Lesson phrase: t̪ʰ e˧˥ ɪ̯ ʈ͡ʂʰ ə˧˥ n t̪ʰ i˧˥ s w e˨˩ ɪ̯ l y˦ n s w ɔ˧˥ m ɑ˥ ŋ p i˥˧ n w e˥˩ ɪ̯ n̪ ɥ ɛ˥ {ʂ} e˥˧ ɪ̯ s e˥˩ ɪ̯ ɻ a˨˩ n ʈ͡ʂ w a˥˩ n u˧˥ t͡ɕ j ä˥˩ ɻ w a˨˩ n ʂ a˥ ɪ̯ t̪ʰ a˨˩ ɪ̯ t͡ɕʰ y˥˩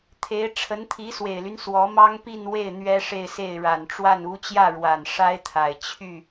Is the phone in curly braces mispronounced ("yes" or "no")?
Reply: no